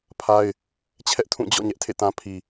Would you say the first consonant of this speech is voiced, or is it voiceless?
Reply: voiceless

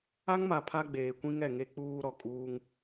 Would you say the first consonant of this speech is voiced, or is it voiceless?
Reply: voiced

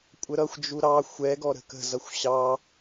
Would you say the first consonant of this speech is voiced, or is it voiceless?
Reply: voiceless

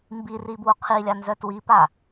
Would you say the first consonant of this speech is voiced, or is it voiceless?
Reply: voiced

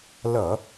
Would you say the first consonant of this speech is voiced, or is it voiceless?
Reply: voiced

